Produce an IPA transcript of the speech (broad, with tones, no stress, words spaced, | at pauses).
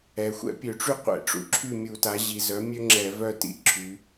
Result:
ɛ˩˧xʷɛ̰˥ pʲø˧˩˧ʈ͡ʂy˥ qʷɛ̰˧˩˧ʈ͡ʂṵ˩˥ǁʰy˥˨ mʲu˧˩˧ta˩˥ ʑi˩˧zœ˩˥ mʲø˥ŋ͡ǁɛ˧˩˧vœ˥˨tḭ˥˨ ǁʰy˩˧